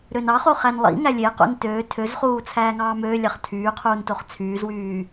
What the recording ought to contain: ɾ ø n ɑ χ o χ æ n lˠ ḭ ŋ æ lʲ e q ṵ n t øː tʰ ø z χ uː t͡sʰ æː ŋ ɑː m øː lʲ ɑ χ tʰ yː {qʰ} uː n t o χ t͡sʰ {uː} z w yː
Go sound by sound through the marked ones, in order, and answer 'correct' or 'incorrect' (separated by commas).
correct, incorrect